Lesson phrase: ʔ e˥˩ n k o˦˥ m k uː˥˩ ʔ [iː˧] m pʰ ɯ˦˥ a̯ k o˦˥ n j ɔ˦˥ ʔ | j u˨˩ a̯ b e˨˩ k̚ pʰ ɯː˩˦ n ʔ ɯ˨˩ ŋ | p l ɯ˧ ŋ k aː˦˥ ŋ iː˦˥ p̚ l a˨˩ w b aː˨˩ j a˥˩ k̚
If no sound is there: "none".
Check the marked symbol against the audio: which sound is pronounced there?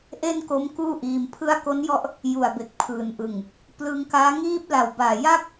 iː˧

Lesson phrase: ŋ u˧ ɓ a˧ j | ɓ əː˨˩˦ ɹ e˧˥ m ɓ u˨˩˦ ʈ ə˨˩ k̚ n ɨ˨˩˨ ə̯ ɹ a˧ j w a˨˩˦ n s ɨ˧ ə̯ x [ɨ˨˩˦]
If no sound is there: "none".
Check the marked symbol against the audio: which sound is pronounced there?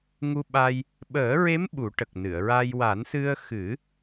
ɨ˨˩˦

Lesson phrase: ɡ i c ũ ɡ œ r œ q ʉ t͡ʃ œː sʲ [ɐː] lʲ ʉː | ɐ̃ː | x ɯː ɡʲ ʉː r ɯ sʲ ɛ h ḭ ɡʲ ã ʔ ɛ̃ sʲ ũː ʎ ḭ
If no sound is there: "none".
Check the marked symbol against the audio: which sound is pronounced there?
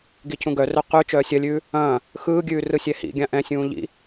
ɐ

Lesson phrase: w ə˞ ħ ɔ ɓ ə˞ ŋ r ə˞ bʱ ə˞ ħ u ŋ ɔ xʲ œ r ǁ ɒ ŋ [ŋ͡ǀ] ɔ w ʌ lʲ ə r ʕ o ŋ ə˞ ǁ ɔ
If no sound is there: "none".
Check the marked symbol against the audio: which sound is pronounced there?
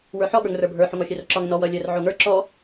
n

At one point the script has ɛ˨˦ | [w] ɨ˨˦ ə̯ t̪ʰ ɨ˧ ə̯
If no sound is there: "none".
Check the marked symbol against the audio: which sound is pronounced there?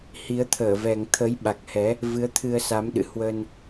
v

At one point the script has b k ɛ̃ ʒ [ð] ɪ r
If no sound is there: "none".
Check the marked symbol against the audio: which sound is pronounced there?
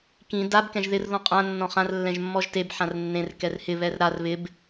ð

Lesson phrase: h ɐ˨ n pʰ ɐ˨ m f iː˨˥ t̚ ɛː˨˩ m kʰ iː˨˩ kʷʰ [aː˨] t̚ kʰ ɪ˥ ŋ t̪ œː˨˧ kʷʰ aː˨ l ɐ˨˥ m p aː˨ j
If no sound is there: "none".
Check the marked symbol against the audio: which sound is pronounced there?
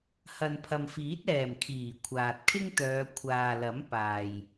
aː˨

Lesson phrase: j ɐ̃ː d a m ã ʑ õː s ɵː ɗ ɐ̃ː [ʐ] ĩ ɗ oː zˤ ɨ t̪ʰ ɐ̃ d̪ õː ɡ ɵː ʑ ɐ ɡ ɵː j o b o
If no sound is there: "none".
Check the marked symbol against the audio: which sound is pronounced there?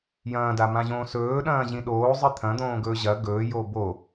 ʑ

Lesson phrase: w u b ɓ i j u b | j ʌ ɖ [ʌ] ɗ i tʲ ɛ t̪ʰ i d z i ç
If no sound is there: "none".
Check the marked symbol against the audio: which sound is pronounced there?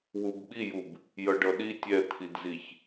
ʌ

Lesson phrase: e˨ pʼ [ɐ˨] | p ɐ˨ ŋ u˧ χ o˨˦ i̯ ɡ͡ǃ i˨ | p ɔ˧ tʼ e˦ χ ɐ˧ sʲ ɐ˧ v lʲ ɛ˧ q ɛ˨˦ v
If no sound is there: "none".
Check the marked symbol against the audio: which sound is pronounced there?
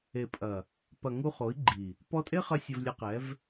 ɐ˨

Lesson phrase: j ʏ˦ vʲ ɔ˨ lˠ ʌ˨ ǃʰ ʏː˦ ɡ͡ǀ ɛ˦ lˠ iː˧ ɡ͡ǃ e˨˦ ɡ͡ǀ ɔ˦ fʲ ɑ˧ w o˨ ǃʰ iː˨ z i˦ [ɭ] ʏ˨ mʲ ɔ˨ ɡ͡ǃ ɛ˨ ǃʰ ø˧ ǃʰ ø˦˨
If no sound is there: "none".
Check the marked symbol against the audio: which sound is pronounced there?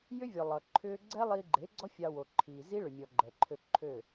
ɭ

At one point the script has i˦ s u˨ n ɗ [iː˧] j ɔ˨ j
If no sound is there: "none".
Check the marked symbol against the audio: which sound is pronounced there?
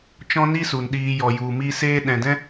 iː˧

